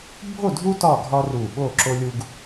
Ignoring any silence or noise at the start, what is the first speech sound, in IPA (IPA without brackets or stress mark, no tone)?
bʱ